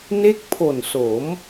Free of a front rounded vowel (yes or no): yes